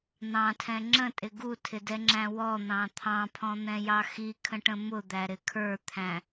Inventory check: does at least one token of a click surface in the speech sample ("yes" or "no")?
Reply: yes